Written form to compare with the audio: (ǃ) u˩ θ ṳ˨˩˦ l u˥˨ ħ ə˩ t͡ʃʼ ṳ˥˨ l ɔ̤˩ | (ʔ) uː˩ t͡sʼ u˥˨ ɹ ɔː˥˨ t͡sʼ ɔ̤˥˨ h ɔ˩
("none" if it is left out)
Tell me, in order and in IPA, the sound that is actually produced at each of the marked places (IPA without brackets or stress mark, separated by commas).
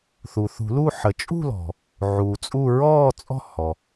θ, ʕ